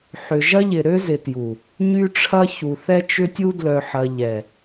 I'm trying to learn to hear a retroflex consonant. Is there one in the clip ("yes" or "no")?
yes